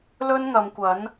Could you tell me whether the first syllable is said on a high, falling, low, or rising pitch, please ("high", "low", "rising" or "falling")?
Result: high